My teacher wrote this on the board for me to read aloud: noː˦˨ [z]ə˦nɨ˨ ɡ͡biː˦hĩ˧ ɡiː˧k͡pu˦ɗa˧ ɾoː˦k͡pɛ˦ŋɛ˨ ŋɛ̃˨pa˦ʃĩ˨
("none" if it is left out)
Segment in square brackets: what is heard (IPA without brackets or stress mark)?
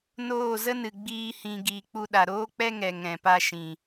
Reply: z